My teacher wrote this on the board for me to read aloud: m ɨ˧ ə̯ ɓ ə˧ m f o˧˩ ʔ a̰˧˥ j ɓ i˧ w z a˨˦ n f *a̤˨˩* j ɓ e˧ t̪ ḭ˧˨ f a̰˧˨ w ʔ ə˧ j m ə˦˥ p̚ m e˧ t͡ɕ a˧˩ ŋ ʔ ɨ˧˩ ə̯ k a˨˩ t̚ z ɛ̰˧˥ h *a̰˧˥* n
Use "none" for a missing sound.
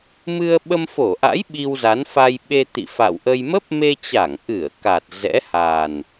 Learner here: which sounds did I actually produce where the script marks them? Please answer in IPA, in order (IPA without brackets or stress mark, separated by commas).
a˧, a˨˩